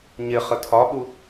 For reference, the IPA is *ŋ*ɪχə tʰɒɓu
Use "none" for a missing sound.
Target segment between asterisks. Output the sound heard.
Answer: ɲ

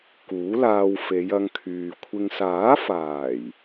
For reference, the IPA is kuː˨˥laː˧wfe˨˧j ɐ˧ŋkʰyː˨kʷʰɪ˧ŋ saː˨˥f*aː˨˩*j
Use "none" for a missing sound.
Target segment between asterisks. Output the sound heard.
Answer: aː˨˩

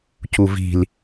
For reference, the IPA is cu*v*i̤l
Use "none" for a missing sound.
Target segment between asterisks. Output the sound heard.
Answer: v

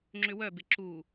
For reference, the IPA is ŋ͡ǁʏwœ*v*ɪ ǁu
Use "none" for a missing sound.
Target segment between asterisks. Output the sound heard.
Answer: b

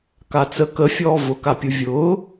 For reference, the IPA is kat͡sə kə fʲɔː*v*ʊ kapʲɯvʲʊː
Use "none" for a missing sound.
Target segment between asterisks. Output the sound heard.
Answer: v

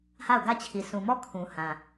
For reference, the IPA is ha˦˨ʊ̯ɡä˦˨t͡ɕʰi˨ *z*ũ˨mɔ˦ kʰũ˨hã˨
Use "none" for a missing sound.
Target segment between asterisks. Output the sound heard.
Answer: s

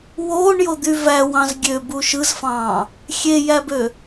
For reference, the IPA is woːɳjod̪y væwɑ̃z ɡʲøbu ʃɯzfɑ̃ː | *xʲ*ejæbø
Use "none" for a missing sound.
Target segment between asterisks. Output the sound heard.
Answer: xʲ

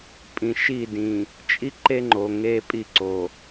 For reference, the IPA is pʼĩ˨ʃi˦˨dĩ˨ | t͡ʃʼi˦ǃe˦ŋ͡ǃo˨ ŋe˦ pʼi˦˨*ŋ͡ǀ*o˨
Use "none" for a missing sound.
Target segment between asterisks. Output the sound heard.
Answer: ǀ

